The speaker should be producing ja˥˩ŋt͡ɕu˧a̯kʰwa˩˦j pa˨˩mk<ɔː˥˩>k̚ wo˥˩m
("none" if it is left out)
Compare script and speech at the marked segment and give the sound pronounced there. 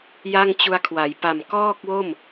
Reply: ɔː˥˩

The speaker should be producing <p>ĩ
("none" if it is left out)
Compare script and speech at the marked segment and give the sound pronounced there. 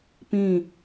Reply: p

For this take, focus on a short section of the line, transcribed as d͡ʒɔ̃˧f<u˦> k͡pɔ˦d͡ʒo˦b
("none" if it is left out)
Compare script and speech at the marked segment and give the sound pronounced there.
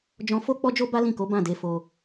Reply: o˦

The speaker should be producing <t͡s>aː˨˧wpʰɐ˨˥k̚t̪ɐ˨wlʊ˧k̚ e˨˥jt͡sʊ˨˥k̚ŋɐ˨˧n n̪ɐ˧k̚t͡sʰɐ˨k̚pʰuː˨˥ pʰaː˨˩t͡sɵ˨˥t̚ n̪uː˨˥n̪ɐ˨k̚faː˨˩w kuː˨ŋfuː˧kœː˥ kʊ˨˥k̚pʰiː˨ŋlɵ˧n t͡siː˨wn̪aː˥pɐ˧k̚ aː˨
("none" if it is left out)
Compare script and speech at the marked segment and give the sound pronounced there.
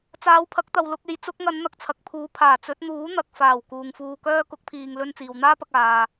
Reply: t͡s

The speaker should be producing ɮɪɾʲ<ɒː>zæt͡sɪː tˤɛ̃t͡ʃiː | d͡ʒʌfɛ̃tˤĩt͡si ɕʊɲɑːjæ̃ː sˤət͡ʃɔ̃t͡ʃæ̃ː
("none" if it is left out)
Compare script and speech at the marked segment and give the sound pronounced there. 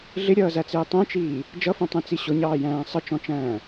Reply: ʌː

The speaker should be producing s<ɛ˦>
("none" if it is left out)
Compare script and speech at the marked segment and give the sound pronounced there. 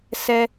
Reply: ɛ˦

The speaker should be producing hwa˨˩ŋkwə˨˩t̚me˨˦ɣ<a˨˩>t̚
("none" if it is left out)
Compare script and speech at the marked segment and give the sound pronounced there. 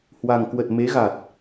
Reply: a˨˩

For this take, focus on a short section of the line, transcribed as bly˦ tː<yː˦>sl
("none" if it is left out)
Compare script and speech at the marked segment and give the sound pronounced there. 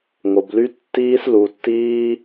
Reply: iː˦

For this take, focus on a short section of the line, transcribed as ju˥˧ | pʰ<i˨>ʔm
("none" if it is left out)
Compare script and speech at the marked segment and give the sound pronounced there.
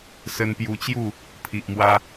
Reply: i˨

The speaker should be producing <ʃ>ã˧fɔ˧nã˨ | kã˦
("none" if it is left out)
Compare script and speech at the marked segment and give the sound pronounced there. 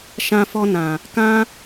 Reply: ʃ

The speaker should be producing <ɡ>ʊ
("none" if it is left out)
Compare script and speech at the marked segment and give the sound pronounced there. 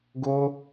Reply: ɡ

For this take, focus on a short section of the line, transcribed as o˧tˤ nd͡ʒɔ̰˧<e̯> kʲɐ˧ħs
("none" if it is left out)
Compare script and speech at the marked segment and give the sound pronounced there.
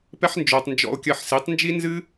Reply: o̯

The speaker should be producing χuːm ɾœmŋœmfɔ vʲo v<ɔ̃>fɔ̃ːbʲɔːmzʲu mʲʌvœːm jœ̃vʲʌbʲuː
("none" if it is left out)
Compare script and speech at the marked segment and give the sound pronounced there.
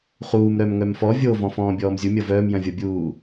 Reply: ɔ̃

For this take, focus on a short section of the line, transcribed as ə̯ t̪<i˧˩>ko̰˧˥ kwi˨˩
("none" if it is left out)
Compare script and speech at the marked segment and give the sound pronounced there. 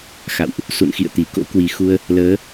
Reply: i˧˩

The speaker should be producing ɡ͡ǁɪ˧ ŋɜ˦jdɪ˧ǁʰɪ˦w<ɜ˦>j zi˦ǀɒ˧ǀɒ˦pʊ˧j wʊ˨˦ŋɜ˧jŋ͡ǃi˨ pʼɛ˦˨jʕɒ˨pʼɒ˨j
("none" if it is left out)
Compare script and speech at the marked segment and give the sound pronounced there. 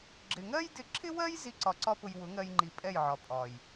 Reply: ɜ˦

